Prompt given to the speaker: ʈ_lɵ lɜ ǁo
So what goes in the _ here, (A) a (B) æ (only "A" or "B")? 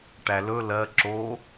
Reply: B